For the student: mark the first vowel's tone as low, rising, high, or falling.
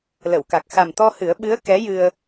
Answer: low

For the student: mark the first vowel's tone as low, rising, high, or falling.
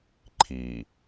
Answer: low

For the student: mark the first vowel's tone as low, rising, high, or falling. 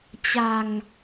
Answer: low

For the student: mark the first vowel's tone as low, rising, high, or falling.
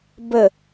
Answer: falling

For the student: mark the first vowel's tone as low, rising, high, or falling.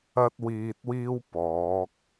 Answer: high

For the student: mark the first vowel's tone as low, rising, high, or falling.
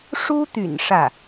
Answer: high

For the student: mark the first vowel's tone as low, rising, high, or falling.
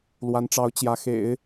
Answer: rising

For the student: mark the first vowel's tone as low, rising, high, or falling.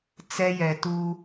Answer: high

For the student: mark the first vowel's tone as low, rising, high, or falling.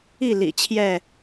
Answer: falling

